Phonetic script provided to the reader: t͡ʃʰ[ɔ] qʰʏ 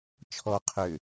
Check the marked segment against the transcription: correct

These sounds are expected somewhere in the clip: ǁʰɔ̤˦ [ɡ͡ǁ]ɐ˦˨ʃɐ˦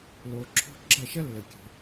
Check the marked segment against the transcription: correct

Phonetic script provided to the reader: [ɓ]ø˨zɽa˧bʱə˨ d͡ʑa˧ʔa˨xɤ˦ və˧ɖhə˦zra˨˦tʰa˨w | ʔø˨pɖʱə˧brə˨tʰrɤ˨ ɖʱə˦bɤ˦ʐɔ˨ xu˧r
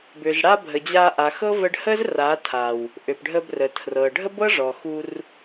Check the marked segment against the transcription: incorrect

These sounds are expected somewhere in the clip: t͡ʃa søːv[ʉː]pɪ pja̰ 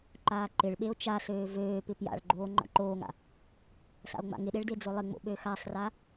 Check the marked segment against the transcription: incorrect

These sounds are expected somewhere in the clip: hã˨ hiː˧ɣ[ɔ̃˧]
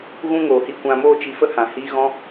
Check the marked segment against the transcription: correct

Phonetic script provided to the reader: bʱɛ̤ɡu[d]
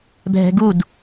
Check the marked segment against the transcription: correct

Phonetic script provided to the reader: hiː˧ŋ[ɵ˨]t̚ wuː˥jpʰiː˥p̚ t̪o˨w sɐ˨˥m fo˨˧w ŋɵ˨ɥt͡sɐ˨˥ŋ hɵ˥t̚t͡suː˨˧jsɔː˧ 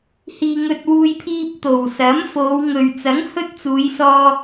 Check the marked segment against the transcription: incorrect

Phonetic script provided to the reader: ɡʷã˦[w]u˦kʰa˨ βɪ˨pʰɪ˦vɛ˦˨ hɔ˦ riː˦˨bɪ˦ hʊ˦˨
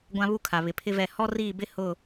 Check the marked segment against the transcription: incorrect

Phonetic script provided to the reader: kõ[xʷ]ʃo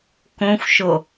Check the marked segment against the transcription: correct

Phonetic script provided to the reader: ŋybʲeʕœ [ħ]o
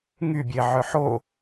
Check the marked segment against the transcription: correct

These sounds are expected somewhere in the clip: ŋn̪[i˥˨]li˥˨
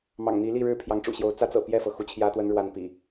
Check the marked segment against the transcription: incorrect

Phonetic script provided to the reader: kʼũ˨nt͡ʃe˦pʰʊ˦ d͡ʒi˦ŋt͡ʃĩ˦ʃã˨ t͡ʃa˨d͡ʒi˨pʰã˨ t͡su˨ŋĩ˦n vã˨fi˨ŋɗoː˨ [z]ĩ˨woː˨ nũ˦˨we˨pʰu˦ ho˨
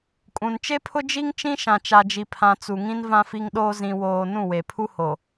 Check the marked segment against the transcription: correct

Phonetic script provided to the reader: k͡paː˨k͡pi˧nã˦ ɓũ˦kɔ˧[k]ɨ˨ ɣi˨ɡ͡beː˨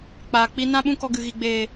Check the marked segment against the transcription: incorrect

